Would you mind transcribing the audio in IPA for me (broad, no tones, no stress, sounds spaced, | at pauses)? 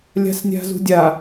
lʲ a̤ s nʲ a̤ z ṳ dʲ a